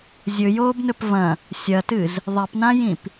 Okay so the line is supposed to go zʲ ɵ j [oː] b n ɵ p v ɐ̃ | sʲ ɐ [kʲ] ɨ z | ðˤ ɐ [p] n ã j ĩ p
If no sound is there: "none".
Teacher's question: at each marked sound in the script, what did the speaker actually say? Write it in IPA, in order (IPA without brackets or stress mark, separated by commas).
oː, t, p